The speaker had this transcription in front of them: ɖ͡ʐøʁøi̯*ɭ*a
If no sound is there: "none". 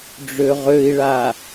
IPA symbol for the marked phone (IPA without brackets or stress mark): ɭ